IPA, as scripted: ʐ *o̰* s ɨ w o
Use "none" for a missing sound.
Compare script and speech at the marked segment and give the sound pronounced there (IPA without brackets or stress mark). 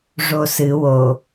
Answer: o